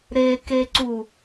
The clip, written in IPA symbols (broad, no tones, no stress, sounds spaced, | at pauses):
ɾ e k e ǀ u